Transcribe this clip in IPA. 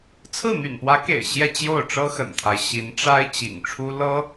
t͡sʰ ɹ̩˥˩ n̪ y̰˨˩ n p w ä˧˥ k ḛ˨˩ ɪ̯ ɕ j ɛ˥˧ t͡ɕ j o˥˩ ʊ̯ ʈ͡ʂ ɤ˥ x ə̰˨˩ n t̪ʰ a˦ ɪ̯ ɕ i˧˥ n ʈ͡ʂ a˥ ɪ̯ t͡ɕ ḭ˨˩ ŋ ʈ͡ʂʰ u˥ l ɤ˥

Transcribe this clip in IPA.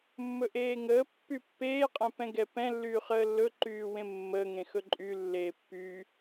mː ɵ ʔ eː ŋ əː pː y pː eː qʼ ɛ̃ p ɛ̃ ɡ ɛ p ɛ̃ lː yː χ əː lː ɵ ǃ yː w ẽ mː əː ŋ ẽ x ɵ ǃʼ y lː eː pː yː

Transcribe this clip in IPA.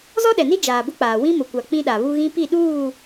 z ɔ˦ ɗ ɛ˨ n i˦ d͡ʒ aː˨ b ʊ˦ k͡p aː˨ w ĩ˦ m ʊ˨ kʷ a˨ k͡p ĩ˦ ɗ a˨ β u˦ ɣ ĩ˦ p i˦˨ ɗ uː˦˨

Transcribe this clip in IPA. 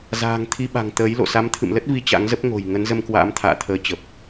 z a̤ː˨˩ ŋ t̪ʰ i˧ ɓ a̤˨˩ ŋ t̪ əː˨˦ j l o̰˧˨ s a˨˦ m t̪ʰ ɨ̰˧˨ m l ə˦˥ t̚ v i˧ t͡ɕ a̰˧˥ ŋ z ə˦˥ p̚ ŋ o̤˨˩ j ŋ ə˨˦ n z ə˧ m k w a̰ː˧˥ m t̪ʰ a̰ː˧˨ t̪ʰ əː˨˦ t͡ɕ ə˨˩ p̚

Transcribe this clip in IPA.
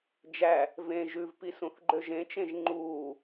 d͡ʒ æ | v ẽ ʒ ʉ v p i s ũ θ ɡ͡ǃ ø ʒ ẽ t͡ʃ ẽ ʒ ŋ͡ǃ uː

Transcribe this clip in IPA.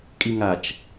kʼ i ŋ a t͡ʃ

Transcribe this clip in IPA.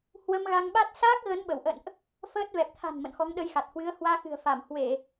h w ə˧ m ɣ a˧ ŋ ɓ a˦˥ t̚ s aː˦˥ k̚ ɣ ə˨˦ n ɓ ə˧˩ w ʔ ə̰˧˨ n ʔ | f əː˦˥ t̚ v ɛ˨˩ p̚ t̪ʰ a̤˨˩ n m ə̰˧˨ n x ɔ˨˦ ŋ ɗ ə˧ j x a˨˩ t̚ h w ɨ˨˦ ə̯ h w aː˧ x ɨ̤˨˩ ə̯ f a˧˩ m h w e˧˩˨

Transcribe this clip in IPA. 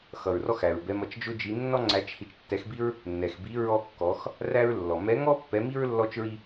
x ʌ˨ ɹ r ɔ˥ x æ˨ ɹ b ɛ˧˥ m ʌ˧˥ t͡ʃ d͡ʒ ʊ˥ d͡ʒ i˧˥ nː ɔ˥ ŋ͡ǀ æ˧˥ t͡ʃ h i˧˥ t͡ʃ tː ɛ˧˥ x b i˥ ɹ | nː ɛ˨ x b i˧˥ ɹ ɔ˥ kː ɔ˧˥ x | r æ˥ ɹ lː ɔ˨ m ɛ˧˥ ŋ ɔ˥ pː ɛ˧˥ m i˥ ɹ lː ɔ˥ t͡ʃ ɹ i˥

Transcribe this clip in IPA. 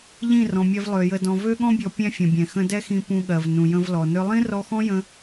ʎ ĩ˦˨ r ɔ̃˨ mʲ ɛ˧ v lˠ ø˨ j ə˨ d ɔ̃˨ v ø˧ ɠ ɔ̃˧ bʲ ɔ˨ pʲ ɛ̃˧ fʲ ə̃˨ bʲ ɛ̃˨ x ə̃˧ d ɛ˦ x ĩ˧ p ũ˧ ɠ ɜ˨ v n ũ˨ j ə̃˧ v l ɔ˨ n ʏ˦ lˠ ĩ˦ r ɔ˧ x ɔ̃˦ j ə̃˧

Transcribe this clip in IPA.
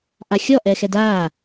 ʔ a xʲ ɔ ʔ ɛː x ɛ d aː

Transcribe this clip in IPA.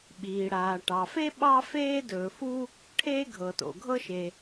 ɓ iː˩ ɽ aː˩ ʈ ɑ˩ f e˥ ɓ ɑ˥ f eː˥ d ɵː˩ f u˥ | ʈʰ eː˥ ɡʱ ɤ˩ t o̰˩ ɡʱ ɤ˥ ʃ e˩

